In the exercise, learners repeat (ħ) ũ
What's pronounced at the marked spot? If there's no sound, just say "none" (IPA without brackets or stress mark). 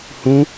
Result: h